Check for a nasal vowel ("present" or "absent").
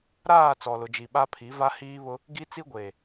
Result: absent